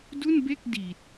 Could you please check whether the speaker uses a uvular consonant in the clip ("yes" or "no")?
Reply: no